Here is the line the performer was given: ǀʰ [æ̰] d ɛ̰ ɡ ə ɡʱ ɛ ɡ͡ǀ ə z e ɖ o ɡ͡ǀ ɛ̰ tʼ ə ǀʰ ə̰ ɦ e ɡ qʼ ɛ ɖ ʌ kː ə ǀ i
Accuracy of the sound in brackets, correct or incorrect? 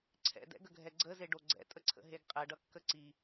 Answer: incorrect